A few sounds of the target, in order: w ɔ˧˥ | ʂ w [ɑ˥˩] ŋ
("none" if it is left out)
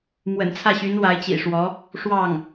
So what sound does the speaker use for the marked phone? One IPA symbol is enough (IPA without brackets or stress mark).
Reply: ɑ˥˩